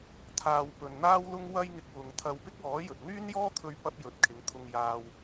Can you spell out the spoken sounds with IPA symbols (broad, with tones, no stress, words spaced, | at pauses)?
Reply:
t̪ʰaː˨w pɵ˨nn̪aː˥wlʊ˥ŋ wɐ˥jŋɪ˧k̚wʊ˨˧ŋ t̪ʰɐ˧wpɪ˥k̚ɔː˨˥jɵ˨t̚ n̪yː˥njɔː˥t̪ʰɵ˧ɥ pɐ˥p̚jɵ˨˥t̚kʰɪ˨˥ŋ t̪ʰʊ˨ŋjaː˨w